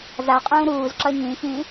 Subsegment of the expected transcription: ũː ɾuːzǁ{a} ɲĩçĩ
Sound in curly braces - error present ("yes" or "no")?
yes